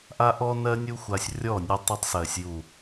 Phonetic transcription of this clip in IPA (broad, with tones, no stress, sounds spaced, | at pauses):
ʔ a˦ ʔ ɔ˦ n ɜ˦ nʲ u˦ xʷ a˧ sʲ rʲ ɔ˦˨ nʲ u˧ tˤ u˧ tˤ s ɜ˨ sʲ j u˨